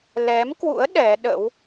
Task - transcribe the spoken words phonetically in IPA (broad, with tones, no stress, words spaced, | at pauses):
lɛ˨˦mkwṵ˧˥ə̯ ɗɛ˨˦ɗə̰˧˥w